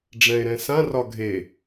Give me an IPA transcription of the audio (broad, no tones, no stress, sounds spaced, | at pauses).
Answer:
ɖ͡ʐ ɛ̃ e̯ ɾ ɛ̃ s ã r ɒ ɡʱ e